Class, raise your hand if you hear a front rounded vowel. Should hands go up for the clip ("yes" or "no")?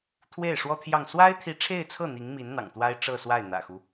no